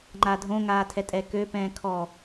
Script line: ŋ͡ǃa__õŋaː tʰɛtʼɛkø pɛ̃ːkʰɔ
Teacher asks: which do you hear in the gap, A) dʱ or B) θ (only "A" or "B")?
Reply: A